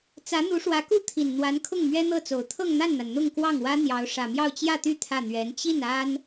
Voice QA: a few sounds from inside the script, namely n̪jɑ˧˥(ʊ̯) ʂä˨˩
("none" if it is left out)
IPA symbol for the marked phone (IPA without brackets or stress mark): ʊ̯